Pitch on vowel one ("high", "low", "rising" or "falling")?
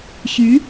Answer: rising